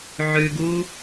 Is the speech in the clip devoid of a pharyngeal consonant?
no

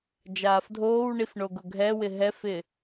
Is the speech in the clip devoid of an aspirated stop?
yes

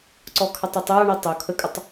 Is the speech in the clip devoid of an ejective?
no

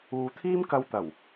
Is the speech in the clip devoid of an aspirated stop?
no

